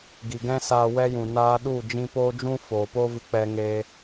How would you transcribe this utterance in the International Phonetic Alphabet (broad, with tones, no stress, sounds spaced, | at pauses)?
ɡ i˨ ɡ ɛ̃˦ s aː˧ w ɛ˦ j ũ˨ n aː˧ ɗ u˦˨ d͡ʒ ĩ˧ p oː˦ d͡ʒ ũ˦ f oː˨ p o˦ v ɨ˧ k͡p ɛ˧ ŋ e˧